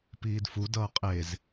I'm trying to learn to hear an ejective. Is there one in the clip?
yes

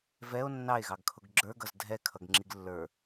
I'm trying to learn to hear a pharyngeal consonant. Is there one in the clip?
no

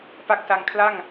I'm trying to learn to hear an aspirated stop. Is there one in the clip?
yes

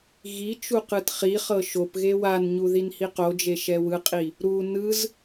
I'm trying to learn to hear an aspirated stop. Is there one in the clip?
no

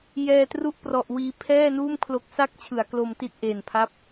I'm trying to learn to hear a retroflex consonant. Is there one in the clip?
no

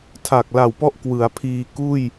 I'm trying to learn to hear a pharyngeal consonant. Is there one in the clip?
no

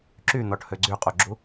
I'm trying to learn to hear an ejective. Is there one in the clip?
yes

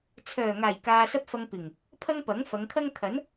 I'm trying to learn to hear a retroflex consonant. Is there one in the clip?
no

